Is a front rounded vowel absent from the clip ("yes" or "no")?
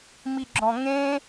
yes